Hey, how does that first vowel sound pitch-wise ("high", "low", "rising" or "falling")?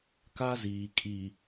high